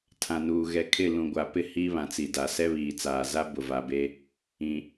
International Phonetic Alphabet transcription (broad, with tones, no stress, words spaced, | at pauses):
tʰã˨nuː˨ ɣɛ˨kʰɪ˦˨ lũ˨ɡʷa˨pɪ˦ hi˦βã˨t͡si˨da˨ sɛ˦βiː˨t͡saː˨ za˦ bʊ˨va˨be˦ | ĩ˨